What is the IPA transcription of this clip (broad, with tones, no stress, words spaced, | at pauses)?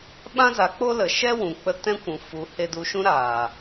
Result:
ɓã˦za˨˦ k͡po˦lə˨ ʃɛ˦wũ˨k͡pə˧ tɛ̃˦kʷũ˨ fu˨˦ he˧du˧ʃũ˦ɾaː˨